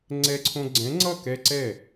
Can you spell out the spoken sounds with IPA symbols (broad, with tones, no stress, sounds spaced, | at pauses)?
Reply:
ŋ͡ǀ ɛ˦ ǀʰ õ˦ ɡ͡ǀ ɛ̃˨˥ ŋ͡ǀ ʌ˥˩ k ɛ˦ ǀ ɛ˥˩